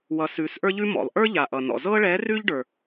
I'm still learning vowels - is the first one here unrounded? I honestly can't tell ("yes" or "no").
yes